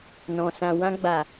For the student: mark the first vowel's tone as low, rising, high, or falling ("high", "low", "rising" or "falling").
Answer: low